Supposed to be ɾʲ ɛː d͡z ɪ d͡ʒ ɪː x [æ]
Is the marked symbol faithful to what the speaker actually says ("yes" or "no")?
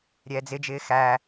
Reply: yes